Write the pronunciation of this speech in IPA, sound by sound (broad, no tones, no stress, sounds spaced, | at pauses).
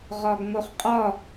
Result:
ʁ ɒ ɡ ŋ o χ qʼ ɒ